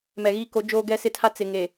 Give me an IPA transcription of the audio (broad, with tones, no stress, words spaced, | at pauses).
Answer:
mɛ˨ɣi˦ko˨˦ d͡ʒoː˦ɡɛ˦sɪ˦tʰa˦ t͡sɪ˨ŋe˨